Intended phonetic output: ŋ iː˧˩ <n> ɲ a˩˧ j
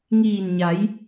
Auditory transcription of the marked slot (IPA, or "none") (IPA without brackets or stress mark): n